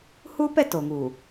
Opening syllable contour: high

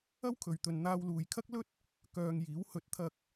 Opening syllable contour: high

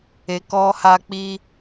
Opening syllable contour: low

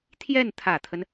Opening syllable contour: falling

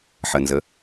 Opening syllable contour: low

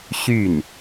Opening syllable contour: falling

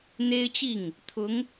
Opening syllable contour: high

